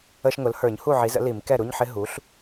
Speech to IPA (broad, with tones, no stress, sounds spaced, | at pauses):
ə˧˥˧ ʃ ŋ ʊ˩˥ l h ə˞˨˩˦ ɲ h u˥˩ ʕ i˩˥ z ə̰˩˥ l i˨˩˦ m k ɛ˥˩ ɾ u˧˥˧ ɲ ħ ɪ˦˥ ɦ u˩˥ ɬ